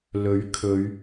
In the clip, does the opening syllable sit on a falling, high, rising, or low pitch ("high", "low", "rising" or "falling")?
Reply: rising